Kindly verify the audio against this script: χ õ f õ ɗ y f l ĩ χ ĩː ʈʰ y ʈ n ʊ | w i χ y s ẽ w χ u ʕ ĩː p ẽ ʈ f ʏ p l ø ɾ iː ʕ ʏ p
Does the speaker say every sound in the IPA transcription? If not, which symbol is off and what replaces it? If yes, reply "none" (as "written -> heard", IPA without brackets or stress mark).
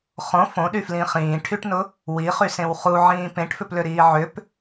none